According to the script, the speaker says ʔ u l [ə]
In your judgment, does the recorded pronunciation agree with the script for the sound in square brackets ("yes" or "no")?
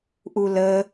yes